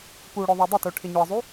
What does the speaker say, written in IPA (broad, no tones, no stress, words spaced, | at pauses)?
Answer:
puɽʊ ðˤɛdˤɪto ʈʰɪɲʊə̯zˤu